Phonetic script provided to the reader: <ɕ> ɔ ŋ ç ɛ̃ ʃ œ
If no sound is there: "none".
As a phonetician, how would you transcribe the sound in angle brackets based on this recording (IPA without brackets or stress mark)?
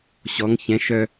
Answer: ɕ